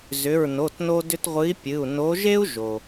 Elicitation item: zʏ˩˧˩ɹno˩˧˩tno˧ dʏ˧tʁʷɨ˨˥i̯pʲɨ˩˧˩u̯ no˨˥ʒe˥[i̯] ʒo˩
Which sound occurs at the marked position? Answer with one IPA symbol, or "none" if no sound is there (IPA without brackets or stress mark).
u̯